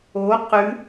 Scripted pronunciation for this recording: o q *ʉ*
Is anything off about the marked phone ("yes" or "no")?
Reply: no